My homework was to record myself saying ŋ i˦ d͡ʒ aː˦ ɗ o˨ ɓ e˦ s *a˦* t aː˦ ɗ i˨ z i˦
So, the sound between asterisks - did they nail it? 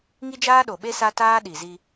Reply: yes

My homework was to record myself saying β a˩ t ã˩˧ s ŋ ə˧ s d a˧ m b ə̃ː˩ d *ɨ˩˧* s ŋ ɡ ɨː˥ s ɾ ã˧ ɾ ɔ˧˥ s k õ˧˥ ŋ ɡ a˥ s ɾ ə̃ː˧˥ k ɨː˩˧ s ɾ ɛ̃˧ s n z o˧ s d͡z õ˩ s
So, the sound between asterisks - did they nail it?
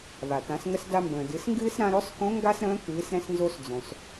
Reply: yes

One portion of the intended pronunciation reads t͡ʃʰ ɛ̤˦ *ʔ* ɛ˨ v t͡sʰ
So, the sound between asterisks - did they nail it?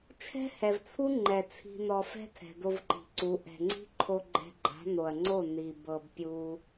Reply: no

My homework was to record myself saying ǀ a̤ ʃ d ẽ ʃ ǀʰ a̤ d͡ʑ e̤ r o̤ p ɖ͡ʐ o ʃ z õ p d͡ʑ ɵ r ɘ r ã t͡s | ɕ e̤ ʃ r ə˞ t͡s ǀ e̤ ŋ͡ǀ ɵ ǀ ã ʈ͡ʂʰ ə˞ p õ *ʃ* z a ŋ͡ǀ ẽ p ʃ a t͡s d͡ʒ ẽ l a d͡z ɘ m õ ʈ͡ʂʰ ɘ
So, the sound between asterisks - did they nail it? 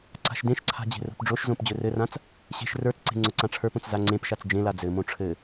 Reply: no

